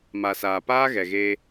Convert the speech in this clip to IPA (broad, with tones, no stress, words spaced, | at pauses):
ma˨saː˨ paː˦ɣɛ˨ɣeː˧